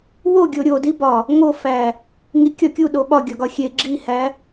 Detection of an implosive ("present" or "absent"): present